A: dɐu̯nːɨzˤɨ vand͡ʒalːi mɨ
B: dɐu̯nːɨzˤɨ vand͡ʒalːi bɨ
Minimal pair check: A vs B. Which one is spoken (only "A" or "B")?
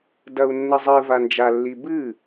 B